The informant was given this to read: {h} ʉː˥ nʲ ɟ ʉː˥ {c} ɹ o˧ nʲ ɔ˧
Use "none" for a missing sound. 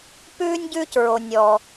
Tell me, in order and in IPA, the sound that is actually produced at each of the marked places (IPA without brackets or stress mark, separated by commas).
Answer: p, c